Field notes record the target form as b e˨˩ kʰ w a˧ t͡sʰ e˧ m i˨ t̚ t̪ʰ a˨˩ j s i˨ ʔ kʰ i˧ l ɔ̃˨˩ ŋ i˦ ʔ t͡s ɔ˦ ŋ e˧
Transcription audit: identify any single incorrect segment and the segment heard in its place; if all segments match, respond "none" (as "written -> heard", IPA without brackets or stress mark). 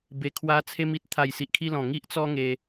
none